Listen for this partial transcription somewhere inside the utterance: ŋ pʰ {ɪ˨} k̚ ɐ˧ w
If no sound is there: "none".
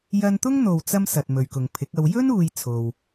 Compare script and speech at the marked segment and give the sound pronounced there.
ɪ˨˥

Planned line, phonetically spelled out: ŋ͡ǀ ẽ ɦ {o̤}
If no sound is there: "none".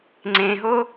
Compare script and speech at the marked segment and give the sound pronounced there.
o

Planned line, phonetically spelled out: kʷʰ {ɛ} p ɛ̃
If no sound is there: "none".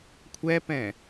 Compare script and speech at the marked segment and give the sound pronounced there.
ɛ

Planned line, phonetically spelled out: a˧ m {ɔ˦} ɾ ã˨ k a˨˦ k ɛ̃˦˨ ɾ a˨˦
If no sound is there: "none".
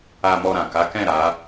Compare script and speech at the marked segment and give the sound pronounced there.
ɔ˧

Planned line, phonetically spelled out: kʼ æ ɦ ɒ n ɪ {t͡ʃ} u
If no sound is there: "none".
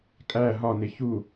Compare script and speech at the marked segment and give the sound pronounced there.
ç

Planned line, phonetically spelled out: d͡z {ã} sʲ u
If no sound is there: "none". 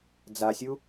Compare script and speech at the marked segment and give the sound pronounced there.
a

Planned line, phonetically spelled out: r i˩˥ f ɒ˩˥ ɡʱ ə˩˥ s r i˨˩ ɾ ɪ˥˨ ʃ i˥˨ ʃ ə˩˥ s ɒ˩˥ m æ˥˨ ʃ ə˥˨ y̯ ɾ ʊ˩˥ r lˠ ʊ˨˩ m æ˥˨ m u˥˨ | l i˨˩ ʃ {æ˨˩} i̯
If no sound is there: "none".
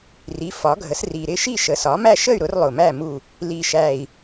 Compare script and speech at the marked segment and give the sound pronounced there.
æ˨˩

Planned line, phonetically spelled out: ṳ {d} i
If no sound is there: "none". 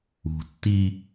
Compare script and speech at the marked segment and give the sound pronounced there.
tː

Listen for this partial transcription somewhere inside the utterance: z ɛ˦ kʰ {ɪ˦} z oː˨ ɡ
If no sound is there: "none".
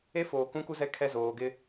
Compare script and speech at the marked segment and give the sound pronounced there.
ɛ˦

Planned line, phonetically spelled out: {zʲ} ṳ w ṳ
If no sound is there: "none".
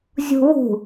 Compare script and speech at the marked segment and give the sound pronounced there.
zʲ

